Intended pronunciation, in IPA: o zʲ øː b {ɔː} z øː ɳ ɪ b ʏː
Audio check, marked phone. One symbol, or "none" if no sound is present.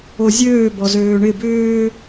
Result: ɔ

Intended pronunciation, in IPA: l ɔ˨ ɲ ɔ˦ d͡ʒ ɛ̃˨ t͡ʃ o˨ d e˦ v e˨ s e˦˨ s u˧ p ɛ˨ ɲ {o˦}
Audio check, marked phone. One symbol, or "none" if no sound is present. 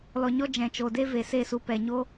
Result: o˦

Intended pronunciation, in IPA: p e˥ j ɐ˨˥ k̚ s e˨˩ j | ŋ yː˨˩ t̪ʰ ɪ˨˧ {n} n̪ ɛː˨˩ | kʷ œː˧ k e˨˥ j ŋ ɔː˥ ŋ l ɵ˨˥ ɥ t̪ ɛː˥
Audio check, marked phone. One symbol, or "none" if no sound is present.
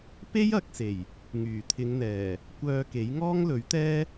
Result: ŋ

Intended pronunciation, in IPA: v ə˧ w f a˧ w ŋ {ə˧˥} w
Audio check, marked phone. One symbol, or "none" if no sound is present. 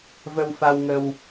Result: ə˧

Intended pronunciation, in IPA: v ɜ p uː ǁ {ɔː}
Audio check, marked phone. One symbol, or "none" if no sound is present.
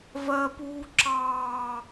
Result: ɑː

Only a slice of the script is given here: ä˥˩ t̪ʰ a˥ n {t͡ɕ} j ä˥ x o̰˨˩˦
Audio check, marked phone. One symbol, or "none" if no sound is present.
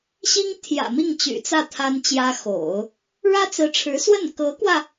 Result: t͡ɕ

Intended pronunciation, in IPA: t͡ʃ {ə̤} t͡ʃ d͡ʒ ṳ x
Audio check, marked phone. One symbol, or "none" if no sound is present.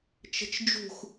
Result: ə̤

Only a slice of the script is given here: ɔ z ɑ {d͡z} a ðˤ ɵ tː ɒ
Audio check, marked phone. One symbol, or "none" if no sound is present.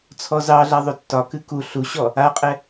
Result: ɮ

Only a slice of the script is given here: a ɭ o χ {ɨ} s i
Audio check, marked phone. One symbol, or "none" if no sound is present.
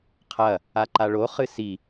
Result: ɨ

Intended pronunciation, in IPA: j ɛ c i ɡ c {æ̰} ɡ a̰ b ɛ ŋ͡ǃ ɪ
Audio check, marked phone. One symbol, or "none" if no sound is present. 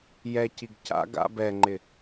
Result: a̰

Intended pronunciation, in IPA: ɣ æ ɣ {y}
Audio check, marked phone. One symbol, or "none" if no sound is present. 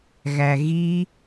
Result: i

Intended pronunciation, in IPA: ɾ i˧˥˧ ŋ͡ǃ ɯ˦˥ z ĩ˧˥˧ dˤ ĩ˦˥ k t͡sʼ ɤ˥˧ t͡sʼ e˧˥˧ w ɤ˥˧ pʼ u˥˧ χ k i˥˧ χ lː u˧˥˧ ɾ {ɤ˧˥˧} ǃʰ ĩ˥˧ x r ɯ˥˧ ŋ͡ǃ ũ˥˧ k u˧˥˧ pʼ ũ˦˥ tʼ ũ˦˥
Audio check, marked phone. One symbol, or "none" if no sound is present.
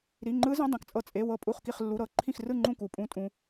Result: ɤ˧˥˧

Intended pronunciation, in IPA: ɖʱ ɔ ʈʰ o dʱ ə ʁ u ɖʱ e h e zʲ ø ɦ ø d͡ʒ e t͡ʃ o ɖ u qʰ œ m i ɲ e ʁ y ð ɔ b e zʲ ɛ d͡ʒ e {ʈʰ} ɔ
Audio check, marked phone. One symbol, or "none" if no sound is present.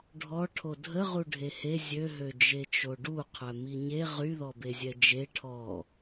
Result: ʈʰ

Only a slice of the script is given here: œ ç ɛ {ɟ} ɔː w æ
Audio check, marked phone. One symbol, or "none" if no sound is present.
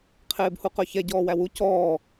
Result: ɟ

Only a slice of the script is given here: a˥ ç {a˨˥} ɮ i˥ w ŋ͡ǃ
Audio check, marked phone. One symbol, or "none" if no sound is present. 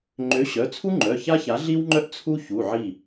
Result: a˨˥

